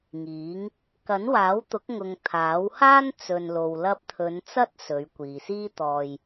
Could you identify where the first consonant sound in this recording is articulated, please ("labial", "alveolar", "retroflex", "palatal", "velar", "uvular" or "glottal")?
velar